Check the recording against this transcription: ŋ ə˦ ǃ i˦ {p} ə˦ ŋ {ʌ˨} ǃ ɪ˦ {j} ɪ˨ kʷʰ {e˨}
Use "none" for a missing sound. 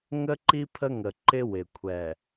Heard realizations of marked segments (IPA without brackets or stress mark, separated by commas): pʰ, ə˨, w, ɛ˨